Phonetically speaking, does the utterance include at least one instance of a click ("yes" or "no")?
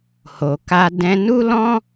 no